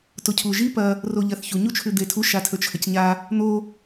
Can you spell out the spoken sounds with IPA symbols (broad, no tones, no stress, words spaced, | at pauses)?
tocʰuʒi pɐ | roʎɐθçu ɲut͡ʃʰʉd̪etʰu ʃatʰɵt͡ʃʰɐcɲa | n̪o